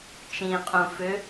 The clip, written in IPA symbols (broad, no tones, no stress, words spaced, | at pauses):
t͡ʃĩqʼũ fʏ